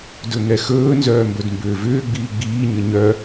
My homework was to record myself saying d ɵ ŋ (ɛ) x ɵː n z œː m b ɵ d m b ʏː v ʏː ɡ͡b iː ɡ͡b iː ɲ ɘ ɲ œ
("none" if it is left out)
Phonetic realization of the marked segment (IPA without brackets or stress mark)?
ɛ